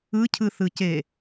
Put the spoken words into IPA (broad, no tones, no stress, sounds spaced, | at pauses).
ɯ cʰ ɯ θ ɯ c e